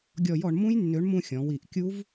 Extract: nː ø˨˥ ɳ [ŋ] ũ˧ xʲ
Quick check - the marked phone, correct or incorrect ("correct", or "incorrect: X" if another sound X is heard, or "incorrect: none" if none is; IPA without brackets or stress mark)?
incorrect: m